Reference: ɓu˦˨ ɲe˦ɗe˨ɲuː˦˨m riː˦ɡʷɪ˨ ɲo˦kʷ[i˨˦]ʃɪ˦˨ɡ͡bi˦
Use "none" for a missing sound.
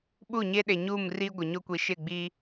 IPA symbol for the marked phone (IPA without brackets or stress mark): i˨˦